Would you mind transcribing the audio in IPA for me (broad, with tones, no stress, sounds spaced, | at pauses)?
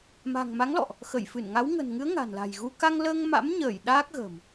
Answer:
m a̤˨˩ ŋ m a˨˦ ŋ l ɔ̰˧˨ ʔ | x ə˧˩ j f ɨ˧˩ n ŋ a˨˦ w ŋ ə̤˨˩ n ŋ ɨ˨˦ ə̯ ŋ a̤˨˩ n l a̤˨˩ j ɣ u˧ k a˧ ŋ l əː˧ ŋ m a̰˧˥ m ɲ əː˧˩ j ɗ aː˦˥ k̚ ɣ ə̤ː˨˩ m